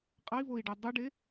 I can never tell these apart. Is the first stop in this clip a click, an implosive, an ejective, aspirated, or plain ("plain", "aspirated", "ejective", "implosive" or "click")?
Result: ejective